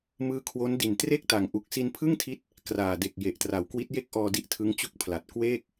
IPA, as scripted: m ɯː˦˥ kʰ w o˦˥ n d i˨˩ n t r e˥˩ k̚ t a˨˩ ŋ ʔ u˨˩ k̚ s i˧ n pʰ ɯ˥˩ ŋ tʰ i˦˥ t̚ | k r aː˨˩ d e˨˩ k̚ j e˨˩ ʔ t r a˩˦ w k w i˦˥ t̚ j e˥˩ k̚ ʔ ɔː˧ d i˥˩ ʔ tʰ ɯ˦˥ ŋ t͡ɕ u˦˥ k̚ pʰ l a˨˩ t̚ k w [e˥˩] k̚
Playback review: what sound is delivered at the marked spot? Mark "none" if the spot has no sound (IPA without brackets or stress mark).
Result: eː˥˩